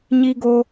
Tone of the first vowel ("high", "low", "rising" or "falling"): high